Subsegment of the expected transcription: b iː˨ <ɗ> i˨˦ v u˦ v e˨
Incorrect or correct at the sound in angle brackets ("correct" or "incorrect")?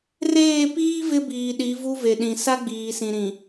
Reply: correct